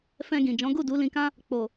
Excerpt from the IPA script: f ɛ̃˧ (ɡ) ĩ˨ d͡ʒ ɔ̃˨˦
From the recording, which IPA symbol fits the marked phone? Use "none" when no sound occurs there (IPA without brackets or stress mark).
ɡ